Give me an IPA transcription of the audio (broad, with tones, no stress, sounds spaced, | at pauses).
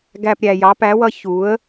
ɡ æ˨ p ɾʲ æ˨ j ɑ˨˦ p æ˨˦ w ʌ˧ ç u˨˦ ə̯